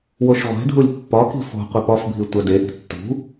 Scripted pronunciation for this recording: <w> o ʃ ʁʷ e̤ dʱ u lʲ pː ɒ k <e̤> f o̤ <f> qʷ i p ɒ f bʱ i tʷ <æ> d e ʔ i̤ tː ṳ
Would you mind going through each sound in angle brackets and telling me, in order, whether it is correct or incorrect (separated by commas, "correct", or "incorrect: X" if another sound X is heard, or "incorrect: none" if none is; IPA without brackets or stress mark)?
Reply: correct, incorrect: i̤, incorrect: none, correct